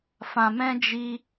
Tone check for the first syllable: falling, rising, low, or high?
low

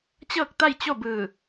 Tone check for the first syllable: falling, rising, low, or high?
falling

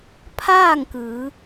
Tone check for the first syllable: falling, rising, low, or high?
falling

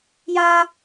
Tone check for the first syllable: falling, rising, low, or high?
high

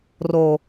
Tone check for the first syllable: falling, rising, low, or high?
low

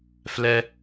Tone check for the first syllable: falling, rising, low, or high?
low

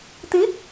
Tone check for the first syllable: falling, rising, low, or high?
rising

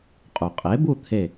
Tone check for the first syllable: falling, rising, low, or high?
low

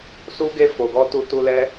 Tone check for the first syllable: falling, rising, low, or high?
high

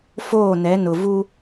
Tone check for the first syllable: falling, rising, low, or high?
falling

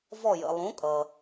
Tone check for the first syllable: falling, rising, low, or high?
falling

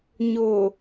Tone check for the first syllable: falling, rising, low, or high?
low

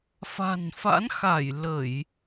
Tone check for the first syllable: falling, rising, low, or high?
low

